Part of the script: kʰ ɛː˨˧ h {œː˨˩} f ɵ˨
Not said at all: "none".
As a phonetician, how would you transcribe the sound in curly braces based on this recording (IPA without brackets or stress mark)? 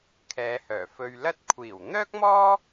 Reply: œː˨˩